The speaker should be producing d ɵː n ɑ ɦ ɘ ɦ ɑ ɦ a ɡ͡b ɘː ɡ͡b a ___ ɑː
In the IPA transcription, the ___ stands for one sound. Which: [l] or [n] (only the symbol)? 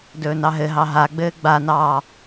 n